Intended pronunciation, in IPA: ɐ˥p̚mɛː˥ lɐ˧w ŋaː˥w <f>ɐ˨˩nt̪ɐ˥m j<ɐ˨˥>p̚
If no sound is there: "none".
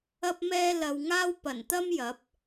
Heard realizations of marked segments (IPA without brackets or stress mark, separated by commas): p, ɐ˨˥